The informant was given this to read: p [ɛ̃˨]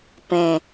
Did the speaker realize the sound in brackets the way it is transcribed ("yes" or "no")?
yes